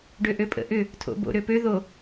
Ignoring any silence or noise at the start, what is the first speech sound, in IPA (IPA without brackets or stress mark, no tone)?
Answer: ɖ